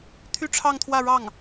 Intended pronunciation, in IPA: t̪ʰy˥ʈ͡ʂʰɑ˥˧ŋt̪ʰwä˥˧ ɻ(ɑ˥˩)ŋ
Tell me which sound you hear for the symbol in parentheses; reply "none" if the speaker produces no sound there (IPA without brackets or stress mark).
ɑ˥˩